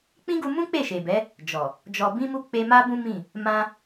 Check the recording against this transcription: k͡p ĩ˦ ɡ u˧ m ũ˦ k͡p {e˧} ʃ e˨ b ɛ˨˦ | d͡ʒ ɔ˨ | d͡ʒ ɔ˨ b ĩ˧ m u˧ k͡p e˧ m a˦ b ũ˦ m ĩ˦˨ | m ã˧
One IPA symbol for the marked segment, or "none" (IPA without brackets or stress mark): e˦˨